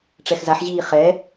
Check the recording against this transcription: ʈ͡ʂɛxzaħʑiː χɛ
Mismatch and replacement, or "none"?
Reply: none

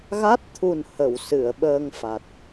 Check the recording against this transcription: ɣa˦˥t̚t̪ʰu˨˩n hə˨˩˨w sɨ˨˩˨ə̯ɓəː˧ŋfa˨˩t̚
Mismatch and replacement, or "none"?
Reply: none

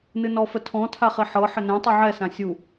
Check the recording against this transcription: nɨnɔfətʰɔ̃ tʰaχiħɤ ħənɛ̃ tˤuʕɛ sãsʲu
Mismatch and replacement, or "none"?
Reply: none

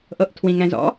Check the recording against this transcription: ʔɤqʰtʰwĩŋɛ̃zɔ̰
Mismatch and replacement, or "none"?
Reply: qʰ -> ʔ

